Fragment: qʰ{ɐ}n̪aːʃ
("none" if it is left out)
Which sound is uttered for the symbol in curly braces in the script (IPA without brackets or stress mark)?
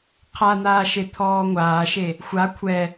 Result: a